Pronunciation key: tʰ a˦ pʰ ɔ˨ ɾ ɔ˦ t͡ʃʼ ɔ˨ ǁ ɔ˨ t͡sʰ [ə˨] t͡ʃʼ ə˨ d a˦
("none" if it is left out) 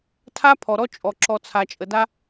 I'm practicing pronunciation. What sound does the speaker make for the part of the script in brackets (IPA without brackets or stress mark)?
a˨